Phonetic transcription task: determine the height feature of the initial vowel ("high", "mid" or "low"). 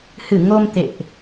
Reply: high